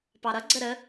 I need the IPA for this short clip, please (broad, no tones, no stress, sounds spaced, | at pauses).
p ɑ ɾ ʌ ɡ͡ǀ ə ɾ ə